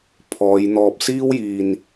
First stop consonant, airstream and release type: aspirated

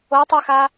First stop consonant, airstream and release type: plain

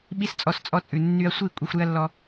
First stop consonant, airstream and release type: implosive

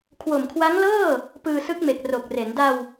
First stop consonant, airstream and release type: aspirated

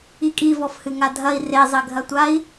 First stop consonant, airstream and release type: ejective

